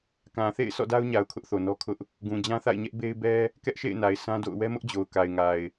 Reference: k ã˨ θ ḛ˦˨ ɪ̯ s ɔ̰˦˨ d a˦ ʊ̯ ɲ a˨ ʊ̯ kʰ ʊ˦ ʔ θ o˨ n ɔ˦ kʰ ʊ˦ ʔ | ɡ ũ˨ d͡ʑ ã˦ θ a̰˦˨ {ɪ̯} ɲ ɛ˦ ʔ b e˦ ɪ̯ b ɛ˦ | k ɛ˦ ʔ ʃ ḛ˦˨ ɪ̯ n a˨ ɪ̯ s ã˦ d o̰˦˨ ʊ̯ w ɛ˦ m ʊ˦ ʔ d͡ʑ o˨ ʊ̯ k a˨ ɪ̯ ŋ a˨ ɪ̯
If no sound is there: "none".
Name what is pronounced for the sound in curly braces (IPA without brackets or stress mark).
ɪ̯